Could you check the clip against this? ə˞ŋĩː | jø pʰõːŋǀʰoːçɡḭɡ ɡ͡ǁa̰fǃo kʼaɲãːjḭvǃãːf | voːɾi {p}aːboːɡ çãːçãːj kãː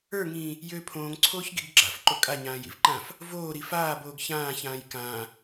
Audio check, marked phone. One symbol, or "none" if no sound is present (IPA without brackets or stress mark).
f